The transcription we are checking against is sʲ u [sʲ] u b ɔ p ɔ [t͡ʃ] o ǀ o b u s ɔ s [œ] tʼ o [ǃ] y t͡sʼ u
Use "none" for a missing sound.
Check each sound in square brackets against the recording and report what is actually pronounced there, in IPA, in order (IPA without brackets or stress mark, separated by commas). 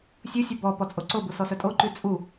sʲ, t͡sʼ, œ, ǃ